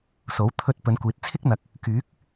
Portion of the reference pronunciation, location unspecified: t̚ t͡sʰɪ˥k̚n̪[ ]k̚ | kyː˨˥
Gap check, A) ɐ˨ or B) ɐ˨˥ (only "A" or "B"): A